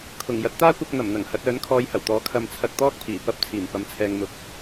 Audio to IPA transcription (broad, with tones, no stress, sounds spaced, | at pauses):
kʰ ʊ˨˩ ŋ j ɐ˨˥ t̚ t̪ aː˥ kʷ ɐ˧ k̚ n̪ ɐ˨˩ m n̪ ɐ˨˩ ŋ h ɐ˨˥ t̚ œː˨˥ n kʰ ɔː˧ j h ɐ˨˩ w t̪ ɔː˨˥ kʰ ɐ˨˧ m t͡sʰ ɐ˧ k̚ t̪ ɔː˥ k̚ pʰ iː˨˩ p ɐ˥ p̚ t͡sʰ iː˨˩ m p ɐ˨˥ m t͡sʰ ɛː˨ ŋ m ʊ˨˥ k̚